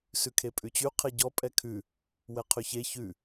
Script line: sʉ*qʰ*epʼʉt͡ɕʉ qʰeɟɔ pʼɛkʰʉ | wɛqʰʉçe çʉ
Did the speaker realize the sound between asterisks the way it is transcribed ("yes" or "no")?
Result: no